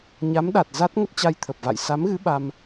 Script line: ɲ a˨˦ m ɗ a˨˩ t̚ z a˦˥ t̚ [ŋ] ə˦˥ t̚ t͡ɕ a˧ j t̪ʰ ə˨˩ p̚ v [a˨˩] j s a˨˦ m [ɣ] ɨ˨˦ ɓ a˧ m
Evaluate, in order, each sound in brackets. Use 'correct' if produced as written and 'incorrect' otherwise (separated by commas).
correct, incorrect, correct